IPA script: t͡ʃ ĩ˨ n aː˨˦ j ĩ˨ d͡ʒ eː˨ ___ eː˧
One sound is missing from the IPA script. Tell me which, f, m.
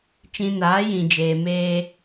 m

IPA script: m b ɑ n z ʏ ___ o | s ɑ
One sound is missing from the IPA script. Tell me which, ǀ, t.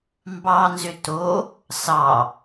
t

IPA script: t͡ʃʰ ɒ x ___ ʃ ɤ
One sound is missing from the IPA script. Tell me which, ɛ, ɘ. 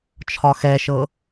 ɛ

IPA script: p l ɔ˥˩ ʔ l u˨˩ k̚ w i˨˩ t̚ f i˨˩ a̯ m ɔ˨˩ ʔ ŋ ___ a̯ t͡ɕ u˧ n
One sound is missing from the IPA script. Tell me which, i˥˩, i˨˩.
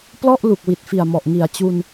i˨˩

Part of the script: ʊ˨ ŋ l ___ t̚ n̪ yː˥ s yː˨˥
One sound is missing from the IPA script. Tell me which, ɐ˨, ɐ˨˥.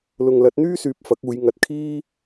ɐ˨˥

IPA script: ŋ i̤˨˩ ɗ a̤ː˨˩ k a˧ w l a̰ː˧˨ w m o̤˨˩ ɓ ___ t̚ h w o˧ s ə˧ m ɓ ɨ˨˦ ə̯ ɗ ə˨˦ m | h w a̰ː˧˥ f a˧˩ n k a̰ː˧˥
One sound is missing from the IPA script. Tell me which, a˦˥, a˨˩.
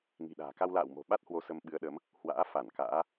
a˦˥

